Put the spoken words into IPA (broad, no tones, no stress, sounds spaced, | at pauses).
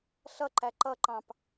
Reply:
ɬ ʌ ǃ æ ǃ ʌ ǃ ɑ̃ p